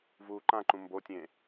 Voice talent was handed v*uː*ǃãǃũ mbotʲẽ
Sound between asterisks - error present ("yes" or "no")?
no